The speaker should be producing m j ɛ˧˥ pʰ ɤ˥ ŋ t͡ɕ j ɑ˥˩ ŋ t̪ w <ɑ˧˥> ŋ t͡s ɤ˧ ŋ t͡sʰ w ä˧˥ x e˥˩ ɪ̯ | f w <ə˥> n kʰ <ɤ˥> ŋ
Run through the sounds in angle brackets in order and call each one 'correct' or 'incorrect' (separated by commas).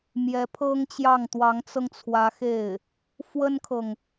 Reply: correct, correct, incorrect